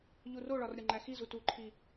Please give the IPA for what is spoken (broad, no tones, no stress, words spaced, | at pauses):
ʎuroɭɒr ɾʲɒŋ͡ǃæxizu tuǃʰi